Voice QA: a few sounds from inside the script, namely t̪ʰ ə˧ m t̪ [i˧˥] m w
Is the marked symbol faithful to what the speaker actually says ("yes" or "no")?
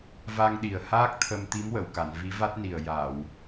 yes